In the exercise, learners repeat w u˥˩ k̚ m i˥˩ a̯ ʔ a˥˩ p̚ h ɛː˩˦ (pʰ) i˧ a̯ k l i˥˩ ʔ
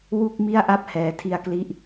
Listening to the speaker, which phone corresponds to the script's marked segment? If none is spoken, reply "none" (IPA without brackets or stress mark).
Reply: tʰ